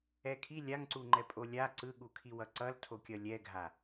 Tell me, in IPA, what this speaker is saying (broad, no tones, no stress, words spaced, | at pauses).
ɛkʰi lʲaŋǀuŋ͡ǃɛ pʼolʲa ǀɯɠukʰi wʌǀʌl tʰokʲʌlʲɛɡʱa